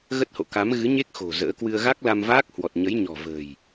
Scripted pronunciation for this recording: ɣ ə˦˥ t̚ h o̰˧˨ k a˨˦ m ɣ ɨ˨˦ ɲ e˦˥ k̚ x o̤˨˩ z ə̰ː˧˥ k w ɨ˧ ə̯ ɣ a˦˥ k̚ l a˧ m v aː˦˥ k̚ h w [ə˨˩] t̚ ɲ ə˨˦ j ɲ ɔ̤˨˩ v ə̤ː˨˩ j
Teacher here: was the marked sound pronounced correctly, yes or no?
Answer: no